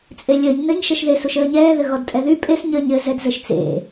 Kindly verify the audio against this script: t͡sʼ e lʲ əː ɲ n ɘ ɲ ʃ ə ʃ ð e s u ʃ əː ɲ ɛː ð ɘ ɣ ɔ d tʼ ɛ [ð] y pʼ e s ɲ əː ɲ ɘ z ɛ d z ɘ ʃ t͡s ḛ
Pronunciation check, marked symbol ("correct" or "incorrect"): correct